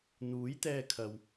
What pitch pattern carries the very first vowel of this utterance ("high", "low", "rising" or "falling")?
rising